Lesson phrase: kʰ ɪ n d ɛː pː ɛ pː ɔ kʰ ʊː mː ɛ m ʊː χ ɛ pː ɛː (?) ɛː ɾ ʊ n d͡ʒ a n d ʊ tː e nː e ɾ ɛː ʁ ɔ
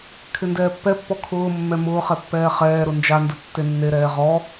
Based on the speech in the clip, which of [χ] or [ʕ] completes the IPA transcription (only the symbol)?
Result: χ